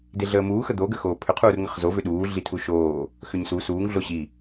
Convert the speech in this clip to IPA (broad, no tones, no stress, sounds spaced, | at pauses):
d e ɮ əː m uː x ə d̪ o ɡ ə x oː pʰ ʏ qʰ uː r ŋ ə χ z o v ʏ ɗ uː ɮ i tʰ u ʃ oː | x ʏ ɲ s u s uː ŋ ɮ o ɕ i